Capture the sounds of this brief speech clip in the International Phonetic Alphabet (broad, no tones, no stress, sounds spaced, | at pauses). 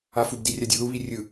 a f u b d i rʲ a dʲ o ð u β i rʲ ɯ